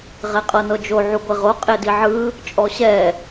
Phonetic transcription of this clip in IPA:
ʁɛqʼɤnɤd͡ʒo ʕuɡʷeʁo qʼediʕɯ | t͡ʃʼɔɕɛ

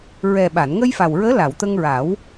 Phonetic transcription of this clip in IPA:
ɹɛ˨˩ɓa˨˩˨nŋə˧jfa˨˩w ɹəː˧˥la˨˩˨wt̪ə˧ŋɹa˨˩˦w

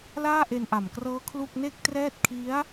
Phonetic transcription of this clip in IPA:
laː˥˩ʔe˧nʔa˨˩mkrɤː˦˥ kʰlu˥˩k̚ ne˥˩k̚trɛː˥˩t̚ kʰi˦˥a̯

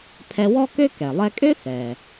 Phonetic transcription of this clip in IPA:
pʰɛ˧wɔ˥kø˥ kɛ˩lˠɛ˧kʼø˥ θɛː˩

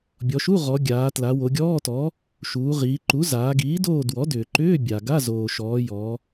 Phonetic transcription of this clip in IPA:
bʲɔ˩˧ʃu˧˥˧ʁɔ˩˧ ɡʲaː˩˧ tla˩˧wo˩˧ɡʲɔː˧˥˧tɔ˩˥ | ʃuː˩˧ʁiː˩˧ǃu˩˥ zaː˩˧ɡiː˩˥doː˦˨ dwɔ˩˥dʏː˩ǃʏː˧˥˧ bʲa˩ɡa˧˥˧ zoː˩ʃɔː˩˧ jɔ˩˧

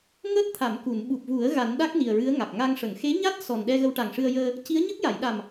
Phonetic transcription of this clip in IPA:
ŋəː˦˥t̚t̪ʰa˨˩˨mku˨˩˨n ɓu˨˩p̚vu˨˩˦ə̯ ɣa˨˩˦nɗa˦˥k̚ ni˨˩ə̯ɹɨ˧˥ə̯ ŋa˨˩k̚ŋa˧ŋ ʂə˨˩˨ŋ xe˧˥ɲa˦˥t̚ sɔ˨˩nɗɛ˧ɣə˧w ʈa˨˩ŋʂɨ˧ə̯jəː˧ | ci˧˥ə̯ɲə˦˥k̚ ja˨˩˨jɗa˨˩m

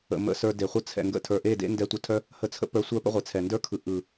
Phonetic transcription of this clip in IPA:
ə̰˨mə̰˧sə˞˧ de˨χʷə˦ t͡sʰɛ̰˨ŋɡə̰˧ tʰə˞˨ʔe˦˨dḛ˦ ndɛ˧tʷə˧tʰœ˦ | hə˧t͡sʰə̰˦pə˞˧ sʷœ˦pə̰˦ʁʷe˨t͡sʰɛ˨ ndə˞˦kʰɯ˨ ʔɯ˨

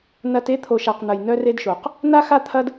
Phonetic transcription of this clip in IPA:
nɐ˦t e˦ t̪ʰo˨ʃa˨qn̪ɐ˨j nœ˦re˦dʃo˨q | na˦xa˦ t̪ʰɐ˦d

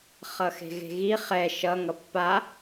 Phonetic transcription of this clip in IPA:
χʌxe̤ɣe̤ɣi χɛ ʃʌ ŋʌpːa

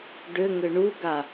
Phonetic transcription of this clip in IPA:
ɖʏŋʏ ɳuɡa

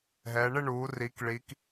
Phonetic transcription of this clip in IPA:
ɦɛ˩˧ ɳɪ˥˧ɳuː˩˧ ri˩˧kɭi˩˧k

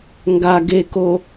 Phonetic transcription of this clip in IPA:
ŋɡa ɡeko

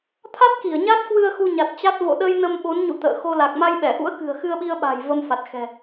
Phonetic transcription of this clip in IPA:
t̪ʰa˦˥t̚ki˧˩ə̯ ɲa˦˥t̚kwɨ˧ə̯ xu˧ɲa˨˩t̚t͡ɕa˦˥t̚ vo̰˧˨ɗə˧j nə˧mɓo˨˦nɲṵ˧˨ t̪ə̰ː˧˨xo˧ la˨˩k̚ma˧jɓɛ˧˩ʔṵ˧˥ə̯ kɨ̤˨˩ə̯xɨ˧ə̯ɓi˧ə̯ɓa̤˨˩j və˧mfa˨˩t̚xɛ̤˨˩

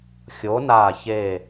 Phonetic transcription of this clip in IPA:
xʲo˩˧na˨˩çe˨˩

